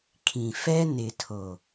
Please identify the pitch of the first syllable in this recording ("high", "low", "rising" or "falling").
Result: low